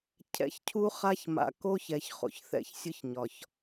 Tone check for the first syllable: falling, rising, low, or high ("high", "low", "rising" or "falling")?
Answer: rising